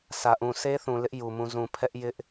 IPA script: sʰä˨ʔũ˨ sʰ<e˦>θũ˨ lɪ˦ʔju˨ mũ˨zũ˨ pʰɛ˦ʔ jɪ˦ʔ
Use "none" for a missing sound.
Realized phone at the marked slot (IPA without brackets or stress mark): e˦